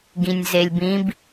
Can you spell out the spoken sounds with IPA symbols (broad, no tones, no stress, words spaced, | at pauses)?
ɡĩnʲzelʲbĩb